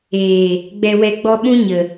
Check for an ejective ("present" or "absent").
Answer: absent